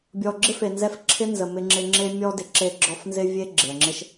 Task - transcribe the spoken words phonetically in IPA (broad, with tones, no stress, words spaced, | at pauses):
bʲɔ˨ɡ͡ǁɪ˦fe˨nzɛ˧f ǁʰɪ˦nzə˨ mɪ˧ŋ͡ǁɪ˧ŋ͡ǁe˦ mʲɔ˦dɪ˨ǁe˧ɡ͡ǁɔ˧f nzɪ˦vʲe˦ ɡ͡ǁɪ˨ə̯ ŋ͡ǁɪ˧ʃ